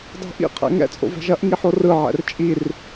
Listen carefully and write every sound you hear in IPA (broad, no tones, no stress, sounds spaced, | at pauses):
dˤ o̤ ʔ ḭ qʰ ɛ̰ ŋ ɛ̰ t͡sʼ o̰ v ɛ̤ ʒ ɐ ʔ ŋ i ħ o r ɯ ʕ ɛ̰ r t͡ʃʼ i r